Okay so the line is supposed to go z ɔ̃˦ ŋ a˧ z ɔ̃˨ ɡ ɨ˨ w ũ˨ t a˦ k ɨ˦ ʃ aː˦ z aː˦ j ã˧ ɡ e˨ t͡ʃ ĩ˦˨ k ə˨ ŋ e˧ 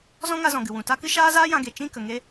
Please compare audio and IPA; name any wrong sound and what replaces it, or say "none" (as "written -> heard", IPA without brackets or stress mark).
none